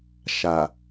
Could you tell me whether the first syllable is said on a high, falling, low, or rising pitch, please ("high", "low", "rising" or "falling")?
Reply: low